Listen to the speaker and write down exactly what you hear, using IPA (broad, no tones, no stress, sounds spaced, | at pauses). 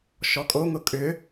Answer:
ʃ ɔ kʼ o ŋ ʊ kʼ ʏ